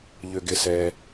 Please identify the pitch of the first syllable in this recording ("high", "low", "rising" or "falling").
low